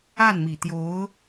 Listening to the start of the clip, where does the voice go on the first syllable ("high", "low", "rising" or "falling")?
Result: falling